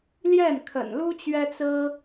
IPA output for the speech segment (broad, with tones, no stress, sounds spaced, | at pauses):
l j ɛ˥˩ n kʰ ə̰˨˩ n l u˥ t͡ɕ ɥ ɛ˥ t͡s ɹ̩˥